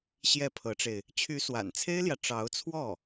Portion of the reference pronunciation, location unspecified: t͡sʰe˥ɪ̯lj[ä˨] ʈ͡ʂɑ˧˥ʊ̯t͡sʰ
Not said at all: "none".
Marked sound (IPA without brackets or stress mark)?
ä˨